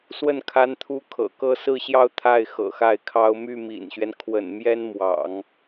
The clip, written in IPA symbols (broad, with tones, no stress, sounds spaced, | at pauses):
s w ə˥˩ n kʰ a˥ n t̪ʰ u˥ kʰ ɤ̰˨˩ k ɤ˥˧ s ɹ̩˥˧ ɕ j ɑ˥˧ ʊ̯ t̪ʰ a˥˩ ɪ̯ x ɤ̰˨˩ x a˥˩ ɪ̯ kʰ ɑ˥ ʊ̯ m y˥˩ m ḭ˨˩ n ɕ ɥ ɛ˦ n kʰ w ə̰˨˩ n m j ɛ˥ n m w ɑ̰˨˩˦ ŋ